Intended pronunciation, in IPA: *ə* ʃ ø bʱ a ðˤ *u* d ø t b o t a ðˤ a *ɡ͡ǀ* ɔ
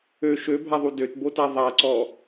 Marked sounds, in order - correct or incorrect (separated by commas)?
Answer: incorrect, correct, incorrect